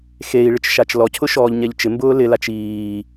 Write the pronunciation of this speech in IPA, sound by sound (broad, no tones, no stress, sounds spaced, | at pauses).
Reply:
x e i̯ ɭ ɪ t͡ʃ ʃ a t͡ʃ l ɔ cʰ ʊ ʃ ɔː ʎ ɲ ɛ ʎ t͡ʃ ɪ m b ʊː l ɪ l a t͡ʃ iː